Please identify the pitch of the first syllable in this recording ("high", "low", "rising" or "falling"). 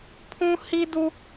high